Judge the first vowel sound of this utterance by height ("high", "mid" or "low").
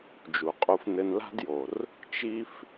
high